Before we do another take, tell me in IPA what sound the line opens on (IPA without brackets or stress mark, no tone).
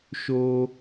ʃ